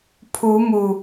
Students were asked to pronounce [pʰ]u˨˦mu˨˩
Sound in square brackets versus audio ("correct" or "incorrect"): correct